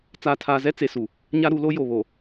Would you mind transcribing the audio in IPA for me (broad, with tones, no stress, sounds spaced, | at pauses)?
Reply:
t͡s aː˨ tʰ aː˨ z ɛ˦ t͡s e˨ s u˨ | ɲ a˦ ɾ u˨˦ l o˦ j o˨ β o˨